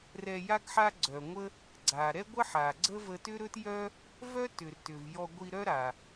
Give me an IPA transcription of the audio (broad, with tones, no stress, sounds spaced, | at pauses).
r ɛ˧ j a˥ ɡ ħ a˥ ɡ͡ǀ œ˩ ŋʷ ə˥ | ɡ͡ǀ a˩ ɾ ɛ˥ ɡʷ ə˥ ħ a˩ ɡ͡ǀ ə˥ v ə˧ t ʏ˥ ɾ ɵ˥ t j œ˥ | v œ˥ t ʏ˩ r t ʏ˩ v j ɔ˧ ɡʷ i˧ ɾ œ˥ ɾ a˩